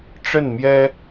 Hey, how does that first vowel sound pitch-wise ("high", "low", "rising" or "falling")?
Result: falling